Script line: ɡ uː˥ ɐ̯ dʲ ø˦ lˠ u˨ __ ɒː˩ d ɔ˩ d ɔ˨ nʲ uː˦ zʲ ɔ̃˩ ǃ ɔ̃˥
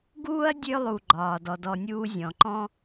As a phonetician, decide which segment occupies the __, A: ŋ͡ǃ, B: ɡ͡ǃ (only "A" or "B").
B